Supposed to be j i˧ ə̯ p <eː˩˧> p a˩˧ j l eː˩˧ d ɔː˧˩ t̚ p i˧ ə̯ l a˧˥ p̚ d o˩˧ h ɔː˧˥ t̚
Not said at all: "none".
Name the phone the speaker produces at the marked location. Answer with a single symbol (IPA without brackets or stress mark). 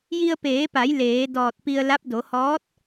eː˩˧